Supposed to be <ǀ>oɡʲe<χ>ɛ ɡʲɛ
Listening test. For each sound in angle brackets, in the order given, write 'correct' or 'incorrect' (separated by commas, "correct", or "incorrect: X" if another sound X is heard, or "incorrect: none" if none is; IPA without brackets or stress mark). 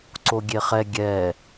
correct, correct